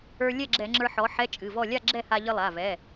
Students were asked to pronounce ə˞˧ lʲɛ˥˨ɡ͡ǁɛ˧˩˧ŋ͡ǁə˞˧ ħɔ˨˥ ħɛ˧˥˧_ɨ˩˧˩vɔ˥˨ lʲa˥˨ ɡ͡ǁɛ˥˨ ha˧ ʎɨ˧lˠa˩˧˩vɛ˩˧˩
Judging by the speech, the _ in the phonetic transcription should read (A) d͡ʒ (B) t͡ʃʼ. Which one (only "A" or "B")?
B